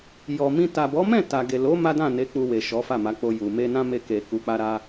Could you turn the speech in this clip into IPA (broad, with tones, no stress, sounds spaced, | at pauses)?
j ɔ˨ m ĩ˧ t a˨ b ɔ˨˦ m ɛ̃˦˨ t a˨ ɡ e˨ l o˨˦ m a˦ d ã˦˨ n e˨˦ k͡p u˧ w e˨ ʃ ɔ˨˦ f a˦˨ m a˨˦ k͡p o˧ j u˨ m e˧ n ã˦ m e˧ k e˨ k u˨˦ k͡p a˦ ɾ a˦